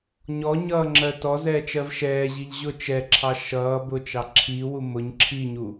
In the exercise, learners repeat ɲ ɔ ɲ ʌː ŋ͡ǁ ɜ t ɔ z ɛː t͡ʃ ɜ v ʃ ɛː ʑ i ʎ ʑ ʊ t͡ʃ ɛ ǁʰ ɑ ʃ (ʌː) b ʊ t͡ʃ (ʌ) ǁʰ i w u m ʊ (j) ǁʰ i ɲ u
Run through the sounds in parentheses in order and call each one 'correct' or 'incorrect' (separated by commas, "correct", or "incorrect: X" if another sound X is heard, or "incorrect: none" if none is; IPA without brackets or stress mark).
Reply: correct, incorrect: ɑ, incorrect: ɲ